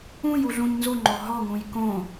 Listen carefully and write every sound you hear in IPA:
ũj uɮũɲnzuŋ͡ǃo ɦɔŋũj kõ

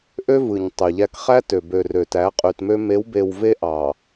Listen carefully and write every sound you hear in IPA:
ʔø˦vɯ˨ɲ tˤy˨ʎæ˦k χæ˦tø˨bø˨ rø˨tæ˨˦ qʼy˨tmø˦ me˨˦wbe˨w ve˦ʔɑ˨

